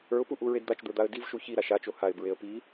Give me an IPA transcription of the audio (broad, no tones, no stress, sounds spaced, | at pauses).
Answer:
ə˞ ʊ̯ p u ʔ u ɹ e d d̪ a t͡ʃ d̪ ə˞ d̪ a ə̯ d i v ʃ u ç i ɾ a ʃ a t͡ʃ o h a ɪ̯ b ɹ e ə̯ p i